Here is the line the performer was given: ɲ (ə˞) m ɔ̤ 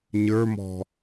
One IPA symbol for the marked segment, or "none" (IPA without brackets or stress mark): ə˞